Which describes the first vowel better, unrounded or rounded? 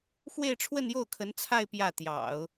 unrounded